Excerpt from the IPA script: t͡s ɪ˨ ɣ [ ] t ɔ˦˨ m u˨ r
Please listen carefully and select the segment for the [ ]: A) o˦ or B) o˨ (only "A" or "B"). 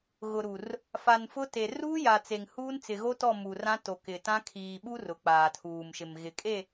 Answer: A